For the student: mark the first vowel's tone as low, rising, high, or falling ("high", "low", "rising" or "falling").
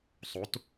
rising